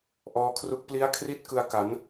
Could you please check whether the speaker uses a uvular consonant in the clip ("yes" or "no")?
no